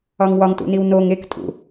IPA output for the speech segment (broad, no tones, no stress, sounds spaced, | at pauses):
ɒ ŋ w ɒ ŋ t ṵ n i w n o ŋ e k tʼ ṵ